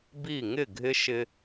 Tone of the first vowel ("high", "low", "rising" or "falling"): falling